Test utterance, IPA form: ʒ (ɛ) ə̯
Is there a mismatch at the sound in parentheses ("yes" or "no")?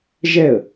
no